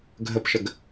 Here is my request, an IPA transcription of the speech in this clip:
ɡʱ ə p ʃ ə ɡ

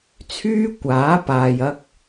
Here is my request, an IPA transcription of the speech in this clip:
t͡sʰ yː˥ kʷ aː˨˥ p aː˨ j ɐ˧ k̚

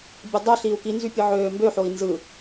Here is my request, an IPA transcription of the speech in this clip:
bʲ ɯ dˤ ø ɬ iː u̯ k i n z y pʲ ɯ ʕ øː m b ø ħ o i̯ n z ɯ

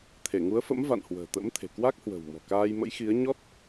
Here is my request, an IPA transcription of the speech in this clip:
t̪ʰ e˧˩ ŋ u˨˦ ə̯ f ə̰˧˥ m v a̰˧˨ n h w ə̤ː˨˩ t̪ ə̰˧˥ m t̪ʰ e̤˨˩ k w a˦˥ k̚ h w ə̤˨˩ w m ɔ̤˨˩ k aː˧ j m ə̰˧˥ j x i˨˦ ə̯ ɲ ɔ˦˥ t̚

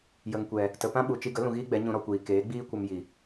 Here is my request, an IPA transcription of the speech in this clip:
j ə˨ ŋ kʷ ɛ˨ | t ə˨ p ã˦ ɓ u˨ t͡ʃ i˧ ɡ ə˨˦ l ũ˨ ɣ iː˦ ɡ͡b ɛ˨˦ ɲ ũ˧ ɾ ɔ˧ kʷ iː˨ k eː˨˦ ɡ͡b iː˦ kʷ ə˧ m j i˨

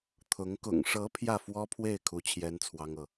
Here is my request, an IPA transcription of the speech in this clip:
t̪ʰ ʊ˧˥ ŋ k ʊ̰˨˩ ŋ ʂ ɤ˧˥ pʰ j ä˥˩ f w ɔ˥ pʰ w e˥˩ ɪ̯ kʰ u˥ t͡ɕʰ j ɛ˥ n t͡sʰ w ɑ˥ ŋ ɤ˨

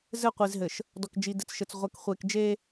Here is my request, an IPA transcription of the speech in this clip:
z ɘ˦˨ qʷ i˨ z ɦ ɘ˨ ʃ | d ɔ˨ k d͡ʒ i˨ d ɘ˨ t͡s ʃ ɘ˨ t͡s ʁʷ ɛ˨ k χʷ e˨ k d͡ʒ e˦

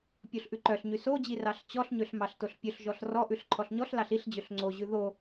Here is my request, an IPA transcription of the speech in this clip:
pʲ o ɬ ʔ ʉ ǃ œ ɬ ɲ y s o d͡ʑ i r ɑ ɬ t͡ɕ ɔ ɬ ɲ ø ɬ m ɑ ɬ t o ɬ pʲ ɵ ɬ ʒ ɔ ɬ r ɔ ʔ ʉ ɬ ǃʰ ɔ ɬ ɲ ɔ ɬ l ɑ ɬ i ɬ d͡ʑ ø ɬ ŋ͡ǀ o ʑ ʉ ð o

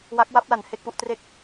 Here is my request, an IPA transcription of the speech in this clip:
w a˦˥ k̚ w a˦˥ p̚ l a˩˦ n h e˥˩ k̚ p u˦˥ ʔ t r e˥˩ k̚

